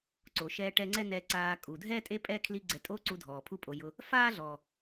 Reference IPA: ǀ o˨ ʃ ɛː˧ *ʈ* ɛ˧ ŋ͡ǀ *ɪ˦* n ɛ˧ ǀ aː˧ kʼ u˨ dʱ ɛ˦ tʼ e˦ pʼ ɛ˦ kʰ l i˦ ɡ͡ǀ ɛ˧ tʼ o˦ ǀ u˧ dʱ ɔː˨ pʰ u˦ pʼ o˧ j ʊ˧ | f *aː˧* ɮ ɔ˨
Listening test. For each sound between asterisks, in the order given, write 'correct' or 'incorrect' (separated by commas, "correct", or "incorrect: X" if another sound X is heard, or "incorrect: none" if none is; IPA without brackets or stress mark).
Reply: correct, incorrect: ɛ˦, incorrect: aː˦